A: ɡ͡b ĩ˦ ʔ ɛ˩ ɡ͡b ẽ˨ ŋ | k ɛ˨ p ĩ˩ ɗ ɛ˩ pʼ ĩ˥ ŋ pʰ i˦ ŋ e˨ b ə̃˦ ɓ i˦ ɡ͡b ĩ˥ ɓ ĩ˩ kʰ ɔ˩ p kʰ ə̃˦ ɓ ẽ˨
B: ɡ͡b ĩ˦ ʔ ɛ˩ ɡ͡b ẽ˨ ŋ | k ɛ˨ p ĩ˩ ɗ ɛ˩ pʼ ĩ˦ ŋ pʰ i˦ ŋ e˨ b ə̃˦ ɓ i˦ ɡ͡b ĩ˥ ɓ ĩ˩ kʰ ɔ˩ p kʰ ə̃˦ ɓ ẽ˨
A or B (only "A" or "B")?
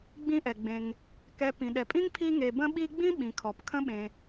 A